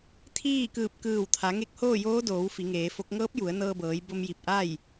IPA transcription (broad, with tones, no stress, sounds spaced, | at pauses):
t̪ʰ iː˥˨ k ɯː˧˩ p̚ k ɯː˧˩ w t̪ʰ a˩˧ ŋ e˧˥ k̚ h oː˥˨ j oː˧˥ d oː˩˧ w f i˩˧ ŋ eː˩˧ f o˧˥ k̚ ŋ ɤː˧˥ p̚ j u˩˧ ə̯ n ɤː˧ b ɤː˩˧ j b o˧ m j i˧˩ p̚ ʔ a˥˨ j